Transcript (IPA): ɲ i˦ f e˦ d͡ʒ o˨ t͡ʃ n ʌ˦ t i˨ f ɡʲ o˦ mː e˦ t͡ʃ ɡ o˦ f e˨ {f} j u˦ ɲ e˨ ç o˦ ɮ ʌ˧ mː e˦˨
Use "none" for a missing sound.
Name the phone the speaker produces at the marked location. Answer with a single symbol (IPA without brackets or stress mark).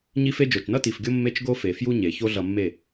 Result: f